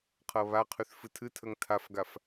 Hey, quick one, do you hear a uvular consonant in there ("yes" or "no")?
yes